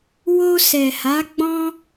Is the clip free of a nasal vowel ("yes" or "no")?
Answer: no